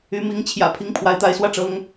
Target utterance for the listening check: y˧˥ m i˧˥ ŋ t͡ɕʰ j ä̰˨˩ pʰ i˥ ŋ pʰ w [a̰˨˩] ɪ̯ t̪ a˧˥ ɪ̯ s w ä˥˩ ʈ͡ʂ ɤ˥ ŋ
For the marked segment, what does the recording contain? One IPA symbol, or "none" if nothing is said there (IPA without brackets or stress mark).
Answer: a˧˥